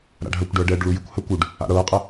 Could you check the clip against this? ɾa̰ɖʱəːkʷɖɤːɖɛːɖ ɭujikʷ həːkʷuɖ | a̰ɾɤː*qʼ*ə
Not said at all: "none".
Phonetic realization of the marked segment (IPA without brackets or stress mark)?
qʼ